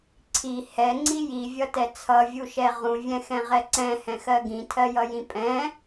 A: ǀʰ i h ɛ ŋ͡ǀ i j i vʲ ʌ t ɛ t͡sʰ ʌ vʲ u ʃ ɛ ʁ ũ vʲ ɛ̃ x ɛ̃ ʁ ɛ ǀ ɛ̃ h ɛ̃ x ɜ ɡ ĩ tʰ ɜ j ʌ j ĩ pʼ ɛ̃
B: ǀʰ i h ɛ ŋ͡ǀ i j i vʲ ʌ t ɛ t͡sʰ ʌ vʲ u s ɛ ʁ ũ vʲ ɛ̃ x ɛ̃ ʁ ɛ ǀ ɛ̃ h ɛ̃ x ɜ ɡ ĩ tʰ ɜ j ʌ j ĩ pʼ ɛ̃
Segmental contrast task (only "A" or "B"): A